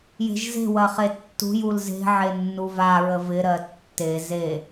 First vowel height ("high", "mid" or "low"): mid